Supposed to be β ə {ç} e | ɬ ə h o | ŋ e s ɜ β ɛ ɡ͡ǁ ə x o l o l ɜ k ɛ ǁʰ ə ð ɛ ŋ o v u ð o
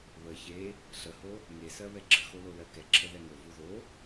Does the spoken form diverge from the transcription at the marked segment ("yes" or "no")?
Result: no